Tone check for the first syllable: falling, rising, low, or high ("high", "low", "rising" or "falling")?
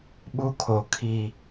high